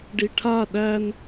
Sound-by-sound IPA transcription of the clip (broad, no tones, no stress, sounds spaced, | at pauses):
ɖ i ʈʰ a ɗ æ n